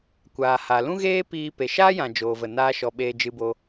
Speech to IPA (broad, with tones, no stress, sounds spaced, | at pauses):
kʷ aː˨ h a˨ l ũ˦ ɣ eː˦ p iː˦ p e˨ ʃ aː˦ j ã˨ d͡ʒ oː˨ v ə˨ n aː˧ ʃ ɔ˨ ɓ eː˧ d͡ʒ ɨ˧ b o˧